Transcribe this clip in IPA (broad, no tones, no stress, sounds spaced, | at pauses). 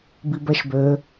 b i b ɛ ʃ b ø